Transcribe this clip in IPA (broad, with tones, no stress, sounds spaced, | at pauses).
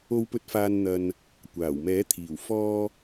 o˨˧ w p ɵ˨˥ t̚ f aː˨ n n̪ ɐ˨ n | kʷ aː˨˩ w m ɛː˨˥ t̪ʰ iː˨˩ w f ɔː˧